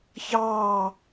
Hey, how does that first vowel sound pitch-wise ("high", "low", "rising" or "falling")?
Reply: falling